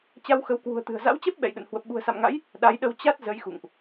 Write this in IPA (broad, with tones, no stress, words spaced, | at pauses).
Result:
t͡ɕa˧wxə˨˦wkwṳ˨˩ə̯t̪ɨ̤˨˩ə̯ za̰˧˥wt͡ɕɛ˦˥p̚ ɓɛ̰˧˨jɗə̰˧˨n hwə˨˩p̚ɓṳ˨˩ə̯sa̰˧˨mŋa̰˧˥j | ɗa˨˦jɗə˧w t͡ɕa˦˥t̚ zə˨˦jxṵ˧˨ŋʔ